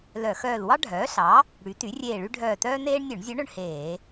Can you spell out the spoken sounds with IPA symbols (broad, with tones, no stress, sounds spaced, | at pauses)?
l œ˧˩˧ x œː˦˨ l w ɑ˥ ɖʱ œː˩˥ ɬ ɑ˩˥ | ɽ y˩˥ t y˩˥ rʲ eː˦˨ ɭ y˥ ɖʱ œː˦˨ t œː˥ n eː˥ ɳ nʲ ɵ˧˩˧ ɳ zʲ ɵ˧˥ ɳ ɵ˦˨ ɳ h eː˧˩˧